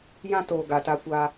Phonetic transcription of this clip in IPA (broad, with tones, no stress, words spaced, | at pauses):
jã˦ toː˨ ɡa˨ta˦kʷa˦